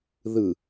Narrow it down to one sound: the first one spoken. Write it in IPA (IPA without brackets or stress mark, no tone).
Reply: ð